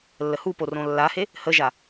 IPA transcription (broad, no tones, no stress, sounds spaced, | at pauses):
lː ə h u p o r õ lː a h e | h ə ʒ a